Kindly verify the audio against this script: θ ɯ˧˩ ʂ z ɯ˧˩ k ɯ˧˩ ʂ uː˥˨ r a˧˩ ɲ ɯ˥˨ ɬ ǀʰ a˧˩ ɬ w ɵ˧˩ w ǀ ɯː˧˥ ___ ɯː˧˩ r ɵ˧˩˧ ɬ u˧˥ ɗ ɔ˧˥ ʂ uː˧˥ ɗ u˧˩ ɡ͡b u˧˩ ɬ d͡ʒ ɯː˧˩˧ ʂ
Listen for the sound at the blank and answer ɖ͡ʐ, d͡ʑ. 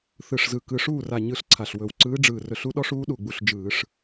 ɖ͡ʐ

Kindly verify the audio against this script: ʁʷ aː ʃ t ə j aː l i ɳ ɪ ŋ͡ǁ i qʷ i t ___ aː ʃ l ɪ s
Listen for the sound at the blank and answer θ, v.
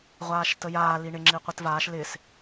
v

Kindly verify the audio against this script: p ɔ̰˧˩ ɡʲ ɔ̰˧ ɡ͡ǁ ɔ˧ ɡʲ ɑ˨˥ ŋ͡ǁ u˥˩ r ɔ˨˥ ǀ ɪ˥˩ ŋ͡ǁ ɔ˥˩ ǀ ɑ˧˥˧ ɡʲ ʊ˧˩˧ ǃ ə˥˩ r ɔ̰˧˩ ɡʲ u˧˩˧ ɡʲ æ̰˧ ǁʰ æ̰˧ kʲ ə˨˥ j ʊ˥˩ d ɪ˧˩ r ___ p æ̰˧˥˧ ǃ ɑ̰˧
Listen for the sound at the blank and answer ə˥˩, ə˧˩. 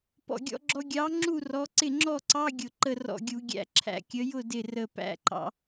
ə˧˩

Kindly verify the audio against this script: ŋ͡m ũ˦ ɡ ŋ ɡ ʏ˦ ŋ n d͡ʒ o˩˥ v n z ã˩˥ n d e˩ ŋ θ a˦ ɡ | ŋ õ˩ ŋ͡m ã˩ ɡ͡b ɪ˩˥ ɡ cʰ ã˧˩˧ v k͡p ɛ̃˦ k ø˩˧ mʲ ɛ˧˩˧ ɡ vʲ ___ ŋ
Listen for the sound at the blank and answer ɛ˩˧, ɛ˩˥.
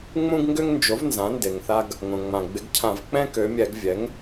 ɛ˩˥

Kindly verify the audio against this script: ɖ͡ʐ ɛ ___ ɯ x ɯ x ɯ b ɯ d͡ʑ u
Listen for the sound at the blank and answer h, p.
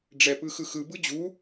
p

